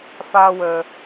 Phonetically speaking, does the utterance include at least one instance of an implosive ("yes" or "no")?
no